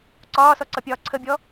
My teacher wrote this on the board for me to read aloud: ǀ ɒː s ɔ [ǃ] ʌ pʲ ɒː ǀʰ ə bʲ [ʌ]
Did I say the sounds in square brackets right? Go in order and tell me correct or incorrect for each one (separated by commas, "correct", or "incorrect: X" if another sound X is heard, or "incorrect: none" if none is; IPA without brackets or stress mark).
incorrect: ǀ, incorrect: ɔ